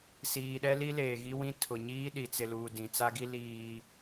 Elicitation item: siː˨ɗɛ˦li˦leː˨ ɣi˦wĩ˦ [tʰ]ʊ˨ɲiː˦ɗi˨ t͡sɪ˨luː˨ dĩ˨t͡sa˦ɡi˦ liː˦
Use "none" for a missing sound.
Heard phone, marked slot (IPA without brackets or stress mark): tʰ